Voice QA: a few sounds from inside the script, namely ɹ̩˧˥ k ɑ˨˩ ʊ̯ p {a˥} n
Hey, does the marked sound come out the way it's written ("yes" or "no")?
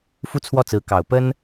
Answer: no